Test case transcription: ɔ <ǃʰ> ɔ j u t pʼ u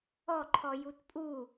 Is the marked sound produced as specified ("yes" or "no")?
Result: yes